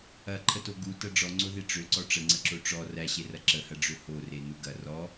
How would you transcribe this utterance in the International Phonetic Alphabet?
ɐ ǃʰ ə t o ɡ u t ɐ ɖ͡ʐ ɔ ŋ͡ǀ o ð e ʈ͡ʂ ø ǀ ɔ ʈ͡ʂ ə ŋ͡ǀ ə ǁ o ʈ͡ʂ ɔ r æ ɕ e r ɐ ǁ ə h ɐ ɖ͡ʐ ø h o r e n u ɡ ɐ r ɔ

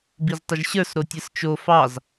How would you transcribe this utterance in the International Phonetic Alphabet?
b i z tˤ ɪ ʒ ɕ ə˞ s ɾ o tʲ ɯ s t͡ʃ o f ɑ z

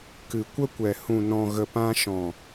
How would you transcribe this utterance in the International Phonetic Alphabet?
k ɨ˨ kʷ ə˦ kʷ ɛ˨ h ũ˨ n ɔ̃˨ ɣ ə˨ p ã˧ ʃ ɔ̃˨

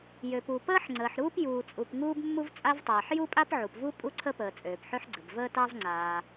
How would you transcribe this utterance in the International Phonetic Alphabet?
j ø˩ p u˩ p əː˥ ħ ŋ͡ǀ əː˩ ħ ɾ uː˥ p j uː˩ t͡sʼ u˩ p ŋ uː˥ b mː u˥ v t͡sʼ a˥ v tˤ aː˩ ħ j u˥ pʼ a˥ p ʕ u˩ p v u˥ pʼ u˥ ǀʰ ə˥ p əː˩ t͡sʼ øː˩ p ħ ø˥ ħ ɡ͡ǀ ə˩ b v əː˥ t ɑ˥ v ŋ͡ǀ aː˩

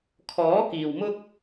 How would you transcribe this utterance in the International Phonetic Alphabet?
kʰ ɔː˨˥ k iː˨ w m ʊ˥ k̚

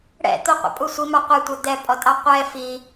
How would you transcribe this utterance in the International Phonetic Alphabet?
ɽ ɛ̰ t̪ o qʷ ɛ̰ pʼ u sʷ i m ɑ qʷ ɛ tʷ ə d̪ ɛ pʼ ɔ tʼ ɑ qʷ ɛ f i

